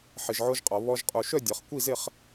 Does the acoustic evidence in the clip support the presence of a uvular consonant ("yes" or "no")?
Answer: yes